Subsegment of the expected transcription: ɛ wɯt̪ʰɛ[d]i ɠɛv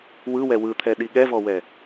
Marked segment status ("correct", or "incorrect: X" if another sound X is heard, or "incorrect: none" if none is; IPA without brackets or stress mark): incorrect: ɗ